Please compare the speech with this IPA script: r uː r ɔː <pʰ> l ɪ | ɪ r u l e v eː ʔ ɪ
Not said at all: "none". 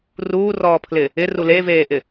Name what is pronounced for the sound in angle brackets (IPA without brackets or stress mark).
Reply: pʰ